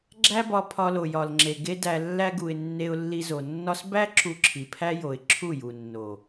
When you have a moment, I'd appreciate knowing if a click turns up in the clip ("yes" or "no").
yes